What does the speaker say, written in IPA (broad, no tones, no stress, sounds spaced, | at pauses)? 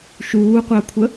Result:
ʃ uː qʷ a kʷʰ ə